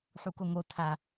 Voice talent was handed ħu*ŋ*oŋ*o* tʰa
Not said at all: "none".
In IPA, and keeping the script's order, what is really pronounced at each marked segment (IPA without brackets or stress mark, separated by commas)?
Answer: k, o